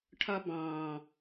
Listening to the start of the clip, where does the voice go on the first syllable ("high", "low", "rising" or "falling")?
high